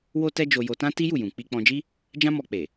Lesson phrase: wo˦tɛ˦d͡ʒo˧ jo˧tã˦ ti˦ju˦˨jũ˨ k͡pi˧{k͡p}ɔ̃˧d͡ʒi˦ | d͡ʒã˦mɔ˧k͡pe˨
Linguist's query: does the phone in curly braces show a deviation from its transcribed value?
no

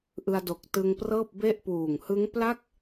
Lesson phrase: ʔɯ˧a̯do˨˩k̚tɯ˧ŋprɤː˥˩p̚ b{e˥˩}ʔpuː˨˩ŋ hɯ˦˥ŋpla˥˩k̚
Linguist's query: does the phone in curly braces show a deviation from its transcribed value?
no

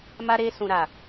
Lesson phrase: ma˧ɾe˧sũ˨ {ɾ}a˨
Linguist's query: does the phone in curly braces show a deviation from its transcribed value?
no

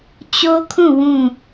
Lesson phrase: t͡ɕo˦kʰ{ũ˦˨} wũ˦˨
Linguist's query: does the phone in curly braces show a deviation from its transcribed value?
no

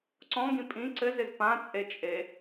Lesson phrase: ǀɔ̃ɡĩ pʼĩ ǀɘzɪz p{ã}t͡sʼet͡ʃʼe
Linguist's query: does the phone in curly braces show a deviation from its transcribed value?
no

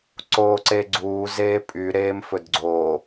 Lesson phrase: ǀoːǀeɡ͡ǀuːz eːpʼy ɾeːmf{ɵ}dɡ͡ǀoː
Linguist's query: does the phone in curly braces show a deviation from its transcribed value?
no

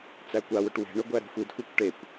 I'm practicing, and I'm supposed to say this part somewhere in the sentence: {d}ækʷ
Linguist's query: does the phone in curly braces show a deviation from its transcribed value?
yes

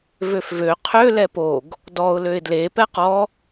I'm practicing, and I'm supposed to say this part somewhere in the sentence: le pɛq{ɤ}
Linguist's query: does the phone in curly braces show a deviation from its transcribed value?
yes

